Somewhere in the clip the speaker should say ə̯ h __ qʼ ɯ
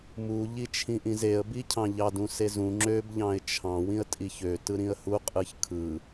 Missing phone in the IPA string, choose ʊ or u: u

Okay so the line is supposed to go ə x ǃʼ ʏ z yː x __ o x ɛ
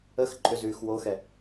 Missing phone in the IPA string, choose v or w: w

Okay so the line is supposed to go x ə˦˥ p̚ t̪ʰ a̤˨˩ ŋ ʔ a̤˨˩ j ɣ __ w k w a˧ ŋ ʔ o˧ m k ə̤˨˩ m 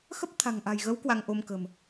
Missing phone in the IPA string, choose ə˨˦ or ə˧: ə˨˦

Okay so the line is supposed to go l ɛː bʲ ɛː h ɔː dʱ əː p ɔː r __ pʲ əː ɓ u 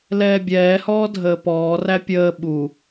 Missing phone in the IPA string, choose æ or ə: æ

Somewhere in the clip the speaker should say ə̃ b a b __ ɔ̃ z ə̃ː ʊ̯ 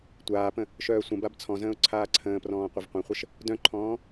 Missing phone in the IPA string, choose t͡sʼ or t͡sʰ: t͡sʰ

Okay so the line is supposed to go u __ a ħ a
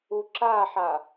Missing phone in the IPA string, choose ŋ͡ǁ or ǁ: ǁ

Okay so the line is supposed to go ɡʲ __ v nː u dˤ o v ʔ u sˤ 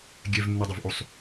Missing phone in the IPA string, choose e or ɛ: ɛ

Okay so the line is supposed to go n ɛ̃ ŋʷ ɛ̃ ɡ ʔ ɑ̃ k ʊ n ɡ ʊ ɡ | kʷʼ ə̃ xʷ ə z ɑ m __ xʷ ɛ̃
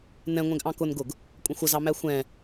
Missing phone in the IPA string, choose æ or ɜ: æ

